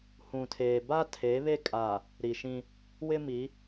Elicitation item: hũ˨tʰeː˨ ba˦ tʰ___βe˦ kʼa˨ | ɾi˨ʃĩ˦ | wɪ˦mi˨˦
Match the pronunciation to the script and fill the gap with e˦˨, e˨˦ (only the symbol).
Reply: e˨˦